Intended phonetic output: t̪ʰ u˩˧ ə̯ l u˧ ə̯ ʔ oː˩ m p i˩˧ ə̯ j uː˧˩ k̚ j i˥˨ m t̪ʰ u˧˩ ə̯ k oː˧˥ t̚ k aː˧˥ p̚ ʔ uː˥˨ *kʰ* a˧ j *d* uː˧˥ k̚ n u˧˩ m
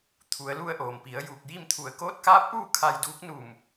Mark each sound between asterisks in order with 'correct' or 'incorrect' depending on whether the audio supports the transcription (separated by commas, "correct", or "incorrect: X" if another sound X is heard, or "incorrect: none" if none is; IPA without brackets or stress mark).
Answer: correct, correct